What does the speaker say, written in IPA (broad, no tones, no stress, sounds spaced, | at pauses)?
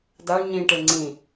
d a ɳ ɲ ĩ ʈ e ŋ͡ǀ ĩ